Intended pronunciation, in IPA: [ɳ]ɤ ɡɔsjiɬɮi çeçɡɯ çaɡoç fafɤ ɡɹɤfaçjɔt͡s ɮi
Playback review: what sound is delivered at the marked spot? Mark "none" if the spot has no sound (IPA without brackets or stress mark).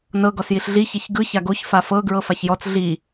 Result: n